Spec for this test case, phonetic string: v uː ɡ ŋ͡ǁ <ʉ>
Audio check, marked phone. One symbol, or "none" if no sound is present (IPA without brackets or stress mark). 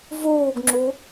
u